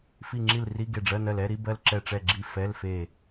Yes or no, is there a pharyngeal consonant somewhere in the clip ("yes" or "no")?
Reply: no